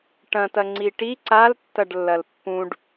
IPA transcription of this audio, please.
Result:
ʈ ɐ̃ t ɐ ŋ͡ǀ i ʈ i ǀ a l tː ɐ ɖ lː ɐ l pː ũ ɖ

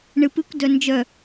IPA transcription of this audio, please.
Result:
ɳ ɨ p ɨ kʷ d œ n d͡ʒ œ

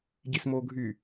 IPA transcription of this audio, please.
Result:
ɟ i s m oː ɡʱ y

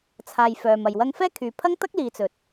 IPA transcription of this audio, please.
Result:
t͡sʰ aː˨ j f œː˨ m ɐ˨ j w ɐ˥ ŋ f ɛː˥ kʰ yː˨ pʰ ɐ˥ ŋ t̪ ɐ˥ k̚ l iː˨ t͡s ɵ˨ t̚

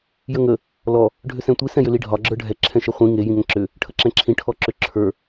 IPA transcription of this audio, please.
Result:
j ə ŋ ə | l ɔ | ɖʱ ʏ s ɛ̃ tʷ i s ɛ̃ j ʏ l i ɖʱ ɒ ɡ͡ǁ ə˞ ɖʱ ɛ ǁʰ ɛ̃ ʃ e χʷ ĩ ŋ e j ĩ ŋ ɛ̃ ǁ ʏ | ʈʰ ə ǁ ɛ̃ ǁʰ ĩ ʈʰ ɔ ǁ ʏ ǁʰ ə˞

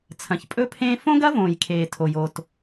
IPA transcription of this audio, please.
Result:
t͡sʰ ɐ̃˩ ç pʼ ɵ˥ pʰ ẽː˥ f õ˥ ɡ ɐ˥ v õː˩ j kʰ eː˩ tʰ o˩ j o˩ t

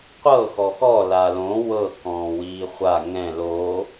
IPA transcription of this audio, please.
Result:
qʷ ɤ x ɔ x ɔ l a l õ w ɤ k ɔ̃ː w iː χʷ a ŋ ɛ̃ l o

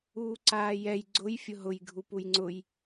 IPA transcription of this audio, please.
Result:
uː ǀ aː j ɛ j ɡ͡ǀ ʊ j fʲ ʊ ɦ ʊ j ɡʱ u p u j ŋ͡ǀ ʊ j

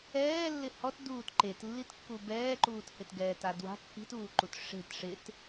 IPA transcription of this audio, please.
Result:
ɛː lː ɪ h ɔ t d uː t ǃ e t lː i t kː u b ɛː ǃ uː t h ɪ t ɡ ɛː t a d w a̤ kː i̤ t uː ǃ u t ʂ e̤ t ʂ ɪ t

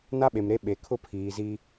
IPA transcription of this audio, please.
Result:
n a˦ ɓ e˨ m ɾ e˦ ɓ e˨ kʰ ʊ˦ pʰ iː˨ z i˦

